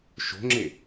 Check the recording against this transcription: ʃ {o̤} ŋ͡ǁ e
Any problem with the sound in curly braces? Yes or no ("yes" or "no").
no